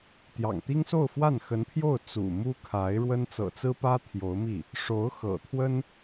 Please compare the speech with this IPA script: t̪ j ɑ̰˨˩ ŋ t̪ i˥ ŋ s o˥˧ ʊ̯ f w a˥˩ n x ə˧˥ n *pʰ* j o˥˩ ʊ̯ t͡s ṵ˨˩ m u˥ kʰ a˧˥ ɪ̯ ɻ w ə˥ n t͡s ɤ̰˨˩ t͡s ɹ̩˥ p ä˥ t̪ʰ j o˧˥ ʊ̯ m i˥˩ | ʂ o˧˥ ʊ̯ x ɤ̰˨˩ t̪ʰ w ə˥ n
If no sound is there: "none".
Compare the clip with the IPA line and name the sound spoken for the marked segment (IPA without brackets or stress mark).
pʰ